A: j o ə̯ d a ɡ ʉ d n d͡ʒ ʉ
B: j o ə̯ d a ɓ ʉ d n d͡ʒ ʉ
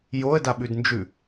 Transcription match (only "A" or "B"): B